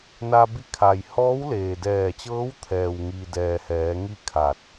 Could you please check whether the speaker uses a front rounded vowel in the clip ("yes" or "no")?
no